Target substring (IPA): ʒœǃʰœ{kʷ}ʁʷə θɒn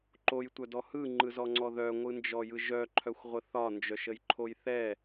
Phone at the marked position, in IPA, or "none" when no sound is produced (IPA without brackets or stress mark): xʷ